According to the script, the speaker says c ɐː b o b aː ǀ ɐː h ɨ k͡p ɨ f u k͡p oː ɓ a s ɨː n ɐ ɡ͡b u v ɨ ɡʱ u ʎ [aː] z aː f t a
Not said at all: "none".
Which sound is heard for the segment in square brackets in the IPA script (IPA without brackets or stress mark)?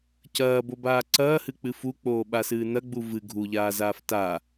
aː